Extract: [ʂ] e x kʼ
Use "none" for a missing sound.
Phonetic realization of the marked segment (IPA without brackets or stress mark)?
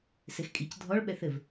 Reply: s